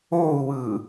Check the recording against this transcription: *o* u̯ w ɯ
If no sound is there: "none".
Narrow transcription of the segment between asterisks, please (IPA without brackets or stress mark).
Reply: o